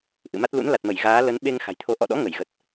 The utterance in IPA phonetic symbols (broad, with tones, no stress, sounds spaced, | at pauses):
ʔ ɨ̰˧˨ m a˦˥ t̚ l ṵ˧˥ n l a˨˩ t̚ m ə˧˩ j ɣ aː˨˦ l ə˨˦ n ɓ e˧ ŋ x a̤˨˩ j t̪ʰ o˧ ʔ ɔ̰˧˨ ɗ ɔ̰˧˥ ŋ ə˧˩ j ɣ ə˨˩ t̚